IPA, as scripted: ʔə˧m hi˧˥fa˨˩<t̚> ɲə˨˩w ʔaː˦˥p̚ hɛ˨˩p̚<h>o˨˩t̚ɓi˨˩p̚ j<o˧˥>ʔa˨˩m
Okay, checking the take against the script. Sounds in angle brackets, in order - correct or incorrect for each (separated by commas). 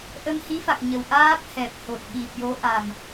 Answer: incorrect, correct, correct